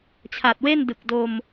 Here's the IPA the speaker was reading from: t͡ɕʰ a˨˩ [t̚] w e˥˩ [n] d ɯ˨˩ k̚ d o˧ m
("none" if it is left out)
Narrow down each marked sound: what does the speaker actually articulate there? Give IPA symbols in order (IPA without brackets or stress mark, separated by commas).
t̚, n